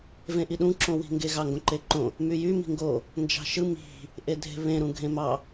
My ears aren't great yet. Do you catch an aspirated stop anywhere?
no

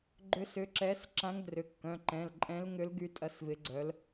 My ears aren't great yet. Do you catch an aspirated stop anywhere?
no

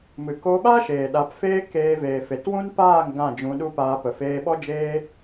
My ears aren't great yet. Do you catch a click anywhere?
no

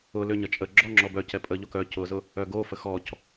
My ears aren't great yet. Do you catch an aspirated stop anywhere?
no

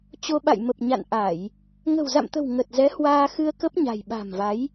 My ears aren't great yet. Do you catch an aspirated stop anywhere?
no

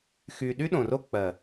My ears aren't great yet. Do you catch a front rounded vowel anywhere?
yes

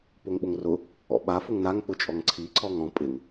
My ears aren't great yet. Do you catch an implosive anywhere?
yes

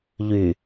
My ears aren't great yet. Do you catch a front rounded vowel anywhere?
yes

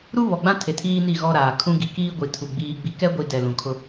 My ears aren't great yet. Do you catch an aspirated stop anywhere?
yes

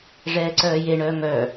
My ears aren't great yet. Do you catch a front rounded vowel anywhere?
yes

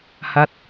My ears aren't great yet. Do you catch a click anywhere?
no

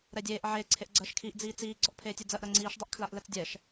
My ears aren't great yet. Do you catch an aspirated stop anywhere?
yes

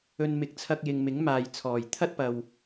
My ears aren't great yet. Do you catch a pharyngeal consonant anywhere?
no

